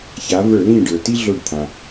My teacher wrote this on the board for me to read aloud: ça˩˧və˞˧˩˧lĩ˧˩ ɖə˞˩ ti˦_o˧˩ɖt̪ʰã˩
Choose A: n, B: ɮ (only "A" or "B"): B